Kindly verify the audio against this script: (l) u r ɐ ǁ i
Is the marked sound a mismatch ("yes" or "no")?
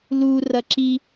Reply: no